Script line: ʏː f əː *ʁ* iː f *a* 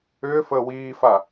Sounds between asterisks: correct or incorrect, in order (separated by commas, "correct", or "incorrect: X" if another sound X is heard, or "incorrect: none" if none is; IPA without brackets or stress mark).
incorrect: w, correct